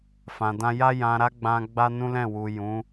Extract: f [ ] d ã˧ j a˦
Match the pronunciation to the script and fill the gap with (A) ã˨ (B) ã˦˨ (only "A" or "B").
A